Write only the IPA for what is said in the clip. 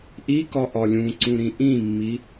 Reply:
ʔ i k ɒ ʔ ɒ lʲ ũ ǀ ũ ɾ ĩ ʔ ĩ mː i

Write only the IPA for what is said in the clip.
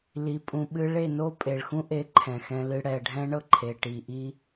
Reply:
l i˨ pʼ ũ˨ ɓ ɨ˧ ɭ e˦˨ n o˦ pʼ e˨ ɭ x ũ˦ ʔ e˨˦ ǃʰ ɛ̃˨ x ɛ̃˧ l ɨ˧ ɽ ɛ˨ ɖʱ ɛ̃˦ ɳ ɤ˦ ǃʰ e˨ ʈ i˨ ʔ i˦

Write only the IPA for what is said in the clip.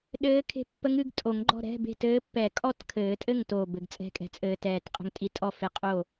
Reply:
ɗ ɘː˧˥ kʰ e̤˧˥ pː ə˧˥ ŋ ɨ˧ ɡ tʼ o˨˩˦ ŋ ɡ͡ǃ ɔ̤˥˨ ɾ ɛ̤˧˥˧ b e̤˥˨ t ɘː˧˥ pː ɛ˨˩˦ kʼ ɔ˥˨ t kʰ ɘː˨˩˦ tʼ ɘ˥˨ ŋ t o˨˩ b ɘ˨˩ ɡ t͡sʼ ɛ̤˧˥˧ kʼ ɛ̤˧ t͡sʼ ɘː˧ t ɛː˨˩ t qʼ ə̤˧ ŋ tʼ i˧ tʼ ɔ˥˨ f e˧˥ qʼ o˥˨

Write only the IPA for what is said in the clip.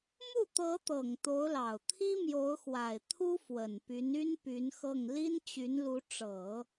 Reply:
m u˥˩ t̪ ɤ˧˥ t̪ ɤ˨˩ ŋ t̪ o˧˥ ʊ̯ l ɑ˨˩ ʊ̯ t̪ʰ i˥ m j o˧˥ ʊ̯ x w a˨˩ ɪ̯ t̪ʰ u˥ f w ə˨˩ n p y˧˥ n y˥ n p y˧˥ n x ɤ˥˩ ŋ l i˥ n t͡ɕ y˧˥ n l u˧˥ ʈ͡ʂ ɤ˨˩˦

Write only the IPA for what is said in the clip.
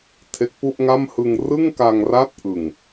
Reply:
tʰ e˦˥ k̚ p u˥˩ ʔ ŋ a˥˩ m h ɯ˧ ŋ r ɯ˥˩ ŋ k a˧ ŋ r a˦˥ t̚ ʔ ɯ˨˩ ŋ

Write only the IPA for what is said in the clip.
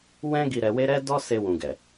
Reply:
w ɛ̃˦ ɡ i˧ ɾ ɛ˧ w e˦ ɾ ɛ˦ d ɔ˦ s e˧ w ũ˨ ɡ ɛ˨

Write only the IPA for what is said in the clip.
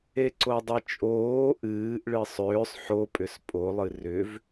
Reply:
e ǀ o dˤ ɨ t͡ʃʼ oː ʔ ɨː ʔ ɭ ɨ sˤ ʏː sˤ ħ o pʼ ʏ s pʼ o lˠ ɨ r ʏ v

